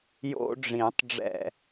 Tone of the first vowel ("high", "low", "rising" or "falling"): high